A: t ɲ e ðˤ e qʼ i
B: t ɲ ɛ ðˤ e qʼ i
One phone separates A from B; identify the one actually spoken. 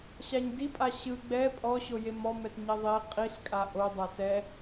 B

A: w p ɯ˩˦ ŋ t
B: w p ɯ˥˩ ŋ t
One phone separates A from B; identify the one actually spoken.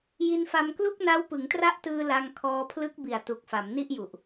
A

